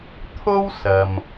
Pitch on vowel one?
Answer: high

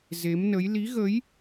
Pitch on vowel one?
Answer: rising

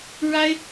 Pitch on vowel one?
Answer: high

